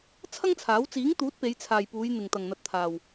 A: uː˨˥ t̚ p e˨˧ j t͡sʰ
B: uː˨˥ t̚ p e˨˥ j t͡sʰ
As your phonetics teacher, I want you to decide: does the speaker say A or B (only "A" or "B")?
A